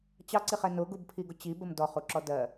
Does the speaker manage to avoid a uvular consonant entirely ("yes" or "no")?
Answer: no